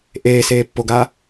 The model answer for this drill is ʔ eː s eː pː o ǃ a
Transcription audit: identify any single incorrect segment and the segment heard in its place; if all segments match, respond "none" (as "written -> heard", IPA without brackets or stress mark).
ǃ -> ɡ